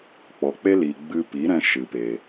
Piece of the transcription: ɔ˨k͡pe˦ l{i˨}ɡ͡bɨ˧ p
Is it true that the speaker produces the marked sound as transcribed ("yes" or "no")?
yes